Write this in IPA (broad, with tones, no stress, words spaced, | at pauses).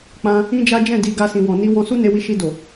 k͡pã˧ | ĩ˦d͡ʒa˦ d͡ʒɛ̃˦˨ di˧ɡa˧ sĩ˨wɔ̃˨ni˧ wɔ̃˧ su˦ ne˧ wi˧ʃi˧do˨